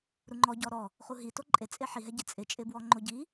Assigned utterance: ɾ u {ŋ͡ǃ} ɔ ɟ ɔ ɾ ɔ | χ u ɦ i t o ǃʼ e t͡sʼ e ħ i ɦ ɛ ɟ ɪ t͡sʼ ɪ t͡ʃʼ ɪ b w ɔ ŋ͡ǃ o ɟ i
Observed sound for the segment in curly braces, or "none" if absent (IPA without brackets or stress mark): ŋ͡ǃ